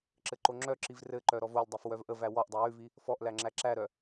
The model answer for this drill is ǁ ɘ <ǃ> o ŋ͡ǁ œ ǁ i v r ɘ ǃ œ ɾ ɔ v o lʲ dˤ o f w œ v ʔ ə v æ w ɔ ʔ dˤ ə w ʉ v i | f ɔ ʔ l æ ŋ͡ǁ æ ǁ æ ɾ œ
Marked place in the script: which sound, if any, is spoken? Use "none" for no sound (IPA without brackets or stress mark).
ǃ